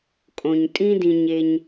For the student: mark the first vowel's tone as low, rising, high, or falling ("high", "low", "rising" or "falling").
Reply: low